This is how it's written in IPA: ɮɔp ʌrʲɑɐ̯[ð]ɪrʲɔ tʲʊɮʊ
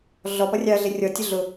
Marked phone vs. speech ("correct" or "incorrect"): incorrect